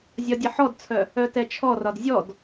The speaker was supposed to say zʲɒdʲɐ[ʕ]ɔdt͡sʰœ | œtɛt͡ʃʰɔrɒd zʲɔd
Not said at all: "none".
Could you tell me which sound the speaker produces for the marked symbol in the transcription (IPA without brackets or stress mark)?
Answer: ħ